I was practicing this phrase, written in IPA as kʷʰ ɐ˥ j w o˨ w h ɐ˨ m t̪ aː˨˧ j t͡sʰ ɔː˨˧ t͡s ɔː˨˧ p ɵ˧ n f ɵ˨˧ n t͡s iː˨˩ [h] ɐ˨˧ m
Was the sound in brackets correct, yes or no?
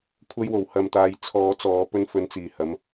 yes